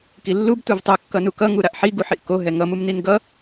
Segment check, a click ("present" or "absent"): absent